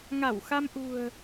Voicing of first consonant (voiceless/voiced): voiced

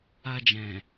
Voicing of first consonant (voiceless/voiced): voiced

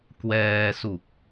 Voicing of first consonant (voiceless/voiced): voiceless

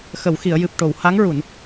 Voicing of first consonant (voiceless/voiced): voiceless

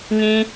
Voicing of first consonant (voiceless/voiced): voiced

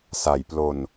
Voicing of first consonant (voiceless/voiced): voiceless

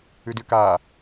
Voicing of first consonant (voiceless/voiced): voiced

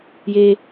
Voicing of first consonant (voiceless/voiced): voiced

